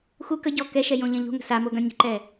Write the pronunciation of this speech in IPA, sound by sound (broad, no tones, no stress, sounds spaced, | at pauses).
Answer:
x u k ə ɟ ɔ k ɛ ʃ ɛ j õ ʎ ɐ̃ ʎ o̤ ŋ ə̤ s a m o ɡ ɐ̃ nʲ ə̤ ǃ ɛ